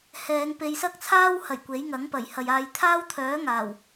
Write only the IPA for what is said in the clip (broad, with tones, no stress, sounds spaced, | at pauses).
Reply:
h ɛː˨˧ ŋ p e˨˧ j s ɐ˥ k̚ t͡sʰ aː˥ w h ɐ˨˩ j kʷ e˨˥ j ŋ ɐ˨˥ ŋ p ɐ˨˩ j h ɐ˨ j aː˧ j t̪ʰ aː˥ w t̪ʰ œː˨˥ ŋ aː˨˩ w